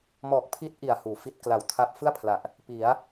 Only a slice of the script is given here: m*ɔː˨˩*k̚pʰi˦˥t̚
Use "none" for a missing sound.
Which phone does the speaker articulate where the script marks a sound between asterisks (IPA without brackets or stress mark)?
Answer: ɔː˨˩